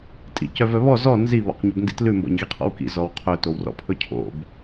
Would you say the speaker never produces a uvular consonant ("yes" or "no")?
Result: no